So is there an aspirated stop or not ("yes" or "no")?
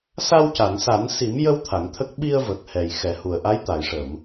yes